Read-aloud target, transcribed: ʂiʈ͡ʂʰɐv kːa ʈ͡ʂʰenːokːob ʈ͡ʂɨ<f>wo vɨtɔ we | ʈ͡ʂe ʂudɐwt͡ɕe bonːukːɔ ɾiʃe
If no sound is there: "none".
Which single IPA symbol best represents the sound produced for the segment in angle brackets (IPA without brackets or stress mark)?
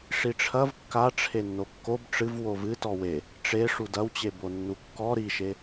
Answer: v